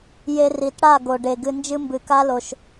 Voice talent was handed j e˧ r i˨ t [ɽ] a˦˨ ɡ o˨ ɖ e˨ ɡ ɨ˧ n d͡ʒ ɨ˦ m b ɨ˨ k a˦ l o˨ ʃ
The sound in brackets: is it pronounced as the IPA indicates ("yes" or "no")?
yes